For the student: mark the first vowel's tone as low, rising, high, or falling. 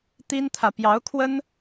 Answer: high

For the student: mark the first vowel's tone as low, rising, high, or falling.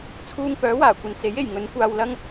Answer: high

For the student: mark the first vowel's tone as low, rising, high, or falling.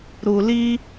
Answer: low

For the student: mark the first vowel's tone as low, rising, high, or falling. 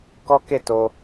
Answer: high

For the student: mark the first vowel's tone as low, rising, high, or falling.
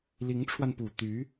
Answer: rising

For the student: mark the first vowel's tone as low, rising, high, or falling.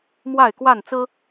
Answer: falling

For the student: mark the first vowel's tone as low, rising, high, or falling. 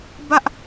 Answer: high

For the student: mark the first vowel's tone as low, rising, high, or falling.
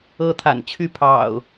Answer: high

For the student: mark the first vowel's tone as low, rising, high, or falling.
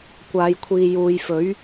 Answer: low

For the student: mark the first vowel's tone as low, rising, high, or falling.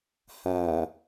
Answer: low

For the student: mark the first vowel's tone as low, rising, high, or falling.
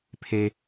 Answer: low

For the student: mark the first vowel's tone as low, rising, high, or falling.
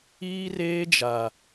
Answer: high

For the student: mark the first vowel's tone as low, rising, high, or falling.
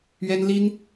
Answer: high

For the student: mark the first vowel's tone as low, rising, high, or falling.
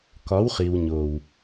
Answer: rising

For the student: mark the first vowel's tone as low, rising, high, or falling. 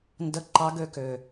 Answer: falling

